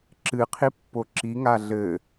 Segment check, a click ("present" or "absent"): present